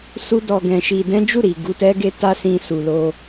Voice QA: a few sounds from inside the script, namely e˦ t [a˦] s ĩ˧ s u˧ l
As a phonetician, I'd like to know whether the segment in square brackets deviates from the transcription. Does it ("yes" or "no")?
no